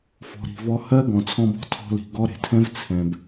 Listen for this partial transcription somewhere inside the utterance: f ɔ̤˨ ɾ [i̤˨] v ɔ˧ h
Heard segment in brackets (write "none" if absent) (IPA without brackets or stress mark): i̤˨